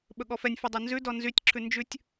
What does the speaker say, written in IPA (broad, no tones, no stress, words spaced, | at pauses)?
ɓɵɠɔfɛnʲfy dˤɵnzʉdɔ nzytʲǁʰʉ nd͡ʒʉtʲ